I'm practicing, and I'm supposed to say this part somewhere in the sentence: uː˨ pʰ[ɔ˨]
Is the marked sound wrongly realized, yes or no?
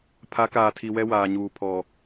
no